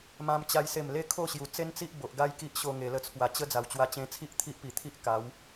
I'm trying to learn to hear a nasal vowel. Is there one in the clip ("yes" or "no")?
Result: yes